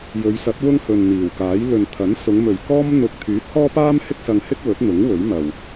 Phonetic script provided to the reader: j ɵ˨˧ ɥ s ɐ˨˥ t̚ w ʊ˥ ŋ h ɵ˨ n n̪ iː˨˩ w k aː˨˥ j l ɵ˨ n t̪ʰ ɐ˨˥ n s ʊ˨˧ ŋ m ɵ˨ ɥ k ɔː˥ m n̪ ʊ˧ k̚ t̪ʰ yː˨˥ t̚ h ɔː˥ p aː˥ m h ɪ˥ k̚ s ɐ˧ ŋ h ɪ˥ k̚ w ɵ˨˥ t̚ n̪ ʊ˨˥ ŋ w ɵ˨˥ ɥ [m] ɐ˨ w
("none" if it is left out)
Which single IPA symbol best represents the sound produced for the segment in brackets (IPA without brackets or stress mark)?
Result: m